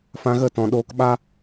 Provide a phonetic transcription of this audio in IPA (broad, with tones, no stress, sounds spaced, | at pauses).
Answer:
f ã˧ ɣ ə˦˨ t ɔ̃˨ ɗ oː˧ k ɓ a˦